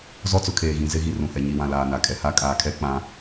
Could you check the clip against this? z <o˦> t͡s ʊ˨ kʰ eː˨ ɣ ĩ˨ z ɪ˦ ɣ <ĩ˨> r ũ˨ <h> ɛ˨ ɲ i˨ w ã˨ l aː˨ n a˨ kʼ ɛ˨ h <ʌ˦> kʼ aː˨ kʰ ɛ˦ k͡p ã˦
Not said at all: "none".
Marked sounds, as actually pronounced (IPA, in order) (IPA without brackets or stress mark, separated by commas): ɔ˦, i˨, h, a˦